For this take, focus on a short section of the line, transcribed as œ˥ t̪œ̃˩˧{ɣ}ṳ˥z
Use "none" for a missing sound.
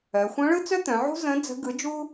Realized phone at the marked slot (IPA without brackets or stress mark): ʕ